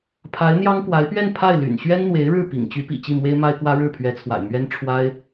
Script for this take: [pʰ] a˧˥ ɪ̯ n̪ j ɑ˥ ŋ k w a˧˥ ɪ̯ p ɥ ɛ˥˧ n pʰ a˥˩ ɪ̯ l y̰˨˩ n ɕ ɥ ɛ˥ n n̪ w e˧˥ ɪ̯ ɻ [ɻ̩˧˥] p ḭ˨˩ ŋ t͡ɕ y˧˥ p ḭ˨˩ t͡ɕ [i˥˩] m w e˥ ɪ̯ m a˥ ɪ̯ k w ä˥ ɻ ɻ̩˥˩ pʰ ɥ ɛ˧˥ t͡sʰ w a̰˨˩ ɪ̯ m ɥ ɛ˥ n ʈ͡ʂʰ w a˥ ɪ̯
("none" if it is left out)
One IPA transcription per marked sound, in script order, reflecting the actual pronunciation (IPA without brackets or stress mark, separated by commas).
pʰ, ɻ̩˥˩, i˥˩